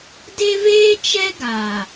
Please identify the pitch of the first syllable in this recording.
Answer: high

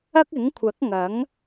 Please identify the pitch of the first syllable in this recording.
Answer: high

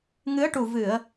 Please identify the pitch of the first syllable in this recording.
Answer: rising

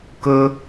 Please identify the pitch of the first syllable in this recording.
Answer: high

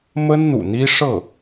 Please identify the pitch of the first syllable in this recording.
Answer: high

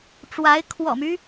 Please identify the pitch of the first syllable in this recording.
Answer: rising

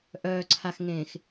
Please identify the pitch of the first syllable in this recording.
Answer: low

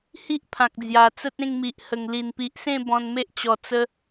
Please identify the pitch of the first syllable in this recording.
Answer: high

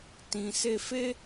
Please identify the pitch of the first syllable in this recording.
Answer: low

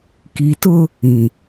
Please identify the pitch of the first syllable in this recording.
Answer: low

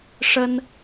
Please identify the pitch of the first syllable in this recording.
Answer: high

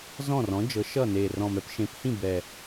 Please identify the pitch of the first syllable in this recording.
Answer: falling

